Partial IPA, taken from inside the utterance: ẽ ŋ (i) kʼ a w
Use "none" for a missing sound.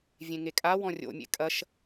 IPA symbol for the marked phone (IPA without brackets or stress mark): e